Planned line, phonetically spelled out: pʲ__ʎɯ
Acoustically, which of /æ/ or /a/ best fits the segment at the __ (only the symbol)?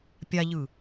a